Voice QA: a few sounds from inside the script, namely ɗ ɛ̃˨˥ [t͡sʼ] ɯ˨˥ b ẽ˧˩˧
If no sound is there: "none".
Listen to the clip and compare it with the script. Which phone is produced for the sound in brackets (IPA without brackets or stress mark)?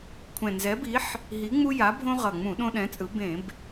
t͡sʼ